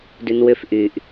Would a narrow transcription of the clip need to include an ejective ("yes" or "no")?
no